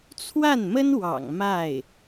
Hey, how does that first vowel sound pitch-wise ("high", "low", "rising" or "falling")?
falling